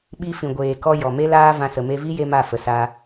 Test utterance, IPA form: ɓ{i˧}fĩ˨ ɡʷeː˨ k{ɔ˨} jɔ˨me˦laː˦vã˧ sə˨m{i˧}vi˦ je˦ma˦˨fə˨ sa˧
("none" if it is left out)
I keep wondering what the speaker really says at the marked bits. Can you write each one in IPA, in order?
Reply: i˧, ɔ˧, e˧

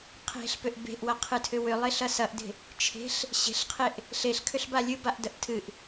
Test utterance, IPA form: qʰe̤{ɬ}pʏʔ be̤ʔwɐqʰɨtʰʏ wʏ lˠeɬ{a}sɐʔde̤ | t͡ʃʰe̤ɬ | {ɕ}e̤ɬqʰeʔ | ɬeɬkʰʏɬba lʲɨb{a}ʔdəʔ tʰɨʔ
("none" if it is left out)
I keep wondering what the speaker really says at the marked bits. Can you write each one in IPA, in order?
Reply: ɬ, ɐ, ɕ, a

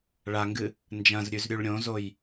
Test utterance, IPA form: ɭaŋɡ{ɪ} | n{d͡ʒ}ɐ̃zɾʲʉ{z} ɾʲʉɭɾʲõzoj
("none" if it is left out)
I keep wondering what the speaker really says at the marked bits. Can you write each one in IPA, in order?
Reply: ɨ, d͡ʒ, z

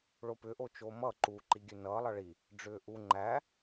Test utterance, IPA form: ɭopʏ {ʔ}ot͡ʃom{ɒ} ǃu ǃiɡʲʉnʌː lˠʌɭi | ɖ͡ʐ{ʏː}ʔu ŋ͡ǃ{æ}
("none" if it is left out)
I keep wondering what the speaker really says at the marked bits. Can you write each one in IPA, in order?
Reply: ʔ, ʌ, ʏː, æ

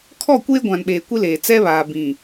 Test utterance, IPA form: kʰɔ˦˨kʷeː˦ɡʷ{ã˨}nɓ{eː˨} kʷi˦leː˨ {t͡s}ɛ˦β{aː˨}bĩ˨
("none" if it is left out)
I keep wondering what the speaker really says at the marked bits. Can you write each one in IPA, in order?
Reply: ã˨, eː˨, t͡s, aː˨

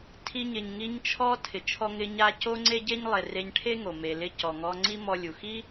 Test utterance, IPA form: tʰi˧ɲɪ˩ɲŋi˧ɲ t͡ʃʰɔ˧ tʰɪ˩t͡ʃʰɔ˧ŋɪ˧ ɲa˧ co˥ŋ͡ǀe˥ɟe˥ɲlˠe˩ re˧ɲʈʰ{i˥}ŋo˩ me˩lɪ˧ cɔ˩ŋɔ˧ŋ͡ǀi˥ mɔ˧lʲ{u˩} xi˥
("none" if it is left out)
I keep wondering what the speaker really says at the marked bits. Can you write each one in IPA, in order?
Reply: e˥, u˩

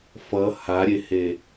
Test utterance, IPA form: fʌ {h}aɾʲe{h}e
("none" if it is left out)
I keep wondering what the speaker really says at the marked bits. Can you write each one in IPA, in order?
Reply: h, h

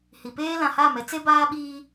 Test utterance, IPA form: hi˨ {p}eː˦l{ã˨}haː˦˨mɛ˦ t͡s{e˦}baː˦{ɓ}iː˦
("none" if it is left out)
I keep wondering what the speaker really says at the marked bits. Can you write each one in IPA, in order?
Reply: p, ã˨, e˦, ɓ

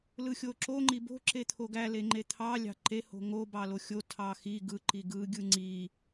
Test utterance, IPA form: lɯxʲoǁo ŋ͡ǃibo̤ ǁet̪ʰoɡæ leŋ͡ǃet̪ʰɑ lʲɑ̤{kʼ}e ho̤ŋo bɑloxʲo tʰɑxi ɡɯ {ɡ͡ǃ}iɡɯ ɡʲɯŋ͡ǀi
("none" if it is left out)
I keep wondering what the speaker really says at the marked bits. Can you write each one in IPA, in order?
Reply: ǃ, ǃ

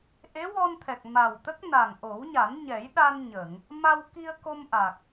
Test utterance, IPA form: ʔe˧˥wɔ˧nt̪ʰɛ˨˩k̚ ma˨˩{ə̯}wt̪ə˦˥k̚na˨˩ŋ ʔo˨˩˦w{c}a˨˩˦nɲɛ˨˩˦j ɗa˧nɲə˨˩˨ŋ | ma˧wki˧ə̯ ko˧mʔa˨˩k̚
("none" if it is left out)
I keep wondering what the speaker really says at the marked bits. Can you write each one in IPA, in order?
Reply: none, ɲ

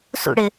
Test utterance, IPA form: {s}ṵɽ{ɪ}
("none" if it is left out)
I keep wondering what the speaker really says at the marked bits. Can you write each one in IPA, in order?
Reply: s, ɪ

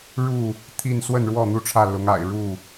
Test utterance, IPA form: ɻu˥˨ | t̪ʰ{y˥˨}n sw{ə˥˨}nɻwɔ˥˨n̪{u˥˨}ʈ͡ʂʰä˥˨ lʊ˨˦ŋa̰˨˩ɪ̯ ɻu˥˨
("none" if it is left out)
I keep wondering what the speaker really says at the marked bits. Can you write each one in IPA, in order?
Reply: i˥˨, ə˥˨, u˥˨

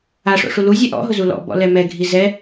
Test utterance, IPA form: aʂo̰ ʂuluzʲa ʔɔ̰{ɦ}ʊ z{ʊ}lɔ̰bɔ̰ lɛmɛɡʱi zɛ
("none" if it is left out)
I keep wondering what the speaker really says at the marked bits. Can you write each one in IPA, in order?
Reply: ɦ, u

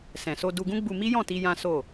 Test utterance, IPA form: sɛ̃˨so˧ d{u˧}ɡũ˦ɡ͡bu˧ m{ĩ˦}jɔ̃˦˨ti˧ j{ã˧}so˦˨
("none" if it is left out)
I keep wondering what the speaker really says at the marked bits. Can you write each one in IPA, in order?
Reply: u˧, i˦, ã˦

